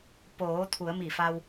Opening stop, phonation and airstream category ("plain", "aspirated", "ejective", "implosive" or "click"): plain